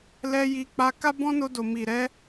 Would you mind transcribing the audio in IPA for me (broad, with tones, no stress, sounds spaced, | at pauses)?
l ɛ˧ j i˧ k͡p a˧ k a˦ b ɔ̃˦ n o˧ d o˨ m i˨ ɾ ɛ˧